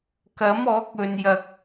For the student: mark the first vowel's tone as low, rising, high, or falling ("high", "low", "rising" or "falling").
rising